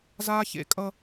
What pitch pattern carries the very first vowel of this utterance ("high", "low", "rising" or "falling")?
high